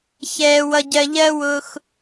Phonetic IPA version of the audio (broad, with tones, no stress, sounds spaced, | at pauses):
ç ɛː˨ w ʌ˨ ɟ ɜ˨ ʎ ɜ˦ w ʊ˧ x